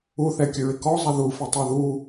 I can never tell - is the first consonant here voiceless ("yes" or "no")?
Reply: yes